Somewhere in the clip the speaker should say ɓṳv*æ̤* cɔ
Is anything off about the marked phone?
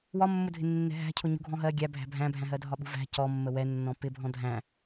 no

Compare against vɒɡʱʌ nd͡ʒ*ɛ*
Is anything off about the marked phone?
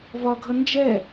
no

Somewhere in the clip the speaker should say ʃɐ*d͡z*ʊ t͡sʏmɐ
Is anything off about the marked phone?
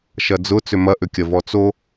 no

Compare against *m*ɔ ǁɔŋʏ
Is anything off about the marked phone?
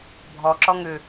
yes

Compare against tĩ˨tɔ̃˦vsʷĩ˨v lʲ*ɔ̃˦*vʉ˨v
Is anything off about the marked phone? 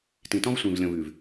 yes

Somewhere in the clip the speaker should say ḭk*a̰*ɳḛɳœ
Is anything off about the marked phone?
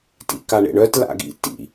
yes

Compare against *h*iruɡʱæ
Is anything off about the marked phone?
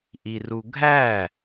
yes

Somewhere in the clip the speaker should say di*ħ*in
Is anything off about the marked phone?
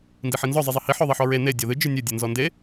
no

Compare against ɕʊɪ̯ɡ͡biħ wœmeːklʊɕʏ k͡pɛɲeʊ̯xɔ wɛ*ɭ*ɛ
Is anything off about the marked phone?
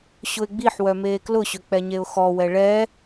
no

